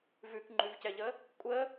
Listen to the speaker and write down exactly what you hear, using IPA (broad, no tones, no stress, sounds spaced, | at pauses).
v ʉ k ŋ͡ǃ ʉ v c ɛ ʎ ə | kʷʼ ə